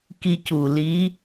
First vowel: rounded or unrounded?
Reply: unrounded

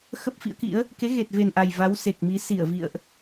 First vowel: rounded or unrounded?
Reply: unrounded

